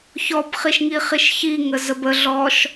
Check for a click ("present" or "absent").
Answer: absent